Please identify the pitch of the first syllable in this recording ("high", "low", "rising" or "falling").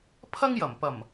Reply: high